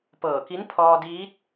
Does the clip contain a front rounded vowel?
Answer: no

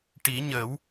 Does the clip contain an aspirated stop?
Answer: no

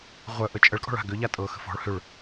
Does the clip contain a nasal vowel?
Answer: no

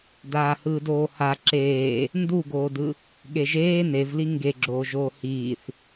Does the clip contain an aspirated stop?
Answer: no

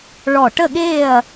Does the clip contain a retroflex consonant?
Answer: yes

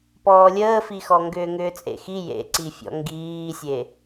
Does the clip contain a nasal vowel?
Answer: no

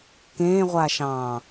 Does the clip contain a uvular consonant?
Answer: yes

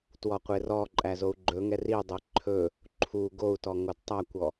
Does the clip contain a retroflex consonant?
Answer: no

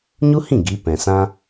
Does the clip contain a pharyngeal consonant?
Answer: no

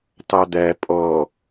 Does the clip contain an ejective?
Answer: yes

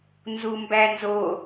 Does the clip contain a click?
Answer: no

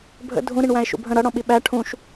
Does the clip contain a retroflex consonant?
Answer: yes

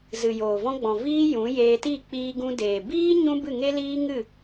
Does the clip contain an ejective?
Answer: no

